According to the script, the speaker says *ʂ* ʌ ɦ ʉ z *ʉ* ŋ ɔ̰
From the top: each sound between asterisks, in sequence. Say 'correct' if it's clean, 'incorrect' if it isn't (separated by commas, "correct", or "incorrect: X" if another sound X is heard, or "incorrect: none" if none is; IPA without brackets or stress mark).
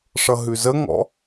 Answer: correct, incorrect: ə